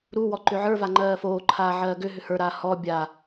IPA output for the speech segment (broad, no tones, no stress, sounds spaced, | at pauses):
ɾ u w ɔ ǃ ʏ ʕ ə˞ v a ŋ͡ǃ ɜː f oː ǃʰ aː ʕ ɜː ɡ ʏ ɦ ʏ h ə˞ ɾ aː h ɔ bʲ a